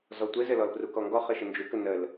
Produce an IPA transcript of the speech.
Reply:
z ɔ tʷ ɘ z ɘ l ɔ l p r u k ɔ ŋ ɡ ɔ χ ə ʃ ə n d͡ʒ u k ə n ə l

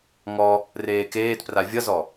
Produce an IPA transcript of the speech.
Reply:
ŋ ɔ | r eː k eː t p r a vʲ ʌ z ɔ

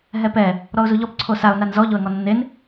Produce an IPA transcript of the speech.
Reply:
ɦ ɛ p ɛ | ɾ ɔ ʊ̯ z u ʎ ɔ p ǀʰ o s a ʊ̯ n a n z ɔ ʎ o ə̯ ŋ ɔ nː e n

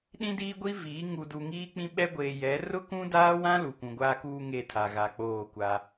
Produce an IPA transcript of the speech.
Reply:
ɗ ĩ˦ d iː˦ ɡʷ i˦ v iː˨˦ ŋ u˨ d u˨ ŋ iː˦ k͡p ĩ˦ ɓ ɛ˦ ɡʷ eː˨ j ɛ˨˦ r ʊ˦ k ũ˦ d aː˦ w ã˦ l u˨ kʷ ũ˨ ɡʷ aː˦ k uː˦ ŋ e˦˨ tʰ a˨ ɣ a˨ k͡p oː˦˨ kʷ a˦

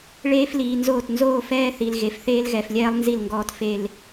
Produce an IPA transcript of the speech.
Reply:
ɭ eː˦ f l iː˨ n z oː˦˨ t n z oː˦ f ɛː˦ θ i˨ l ɣ e˨ f θ eː˦ l ɣ ɛ˨ f lʲ ɛː˦ lˠ n z i˦˨ l ŋ ɡ ɔː˦ t f e˦ l

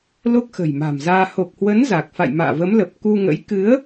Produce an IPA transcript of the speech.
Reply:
l o˦˥ k̚ x ə̤˨˩ j m a̤˨˩ m z aː˧ h o˨˩ k̚ h w ə˨˦ n z a˨˩ k̚ f a̰˧˨ j m a̰ː˧˨ v ə˨˦ m l ə˨˩ p̚ k u˧ ŋ ə̰˧˥ j k ɨ˨˦ ə̯

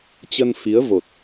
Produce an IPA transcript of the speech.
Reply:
t͡ɕ ə˧ n f i˨˦ ə̯ v o˨˩ t̚

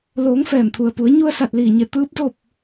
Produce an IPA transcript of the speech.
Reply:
l oː˩˧ ŋ f ɛː˧˩ m t̪ʰ u˩ ə̯ p u˩˧ ə̯ ɲ u˧ ə̯ s a˧˩ t̚ l iː˧˩ ɲ e˧˩ t̪ ɯː˧˥ p̚ d o˥˨ p̚

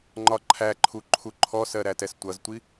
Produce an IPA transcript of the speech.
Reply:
ŋ͡ǃ ɒ ǃʰ æ ǃʰ u ǃʰ u ǃʰ ɔ s ɜ ɾ æ t ɛ s tʷ ʌ z tʷ i

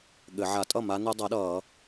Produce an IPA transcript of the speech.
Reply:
ɠ ɘ˨˩˦ ʕ a˨˩˦ tʼ ʌ˥˩ m a˦˥ n u˦˥ dˤ ɤ˩˥ ɗ ʌː˨˩˦

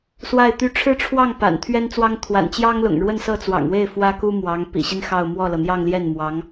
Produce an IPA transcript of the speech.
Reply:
s w a˥˩ ɪ̯ t̪ y˧˥ ʈ͡ʂʰ ɻ̩˥˧ ʈ͡ʂʰ w ɑ˥˩ ŋ p a̰˨˩ n t̪ʰ ɥ ɛ˥ n t͡s w ɑ˥ ŋ t̪ʰ w a̰˨˩ n t͡ɕ j ɑ˥ ŋ l ʊ̰˨˩ ŋ ɻ w ə˥˧ n s ɤ˥˩ t͡s w ɑ̰˨˩ ŋ w e˥˩ ɪ̯ f w ä˥ k u˥ m w ɑ˧˥ ŋ p ḭ˨˩ ɕ i˦ n x ɑ˥˧ ʊ̯ m w ɔ˥˩ l ɤ˩ n̪ j ɑ˥˧ ŋ l j ɛ˥˩ n m w ɑ˧˥ ŋ

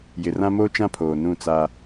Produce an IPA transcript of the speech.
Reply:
j ɪ˨ r ã˦ m oː˦ t͡ʃ ã˦ pʰ oː˨ n ũ˦˨ t͡s a˦

